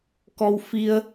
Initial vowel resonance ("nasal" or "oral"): oral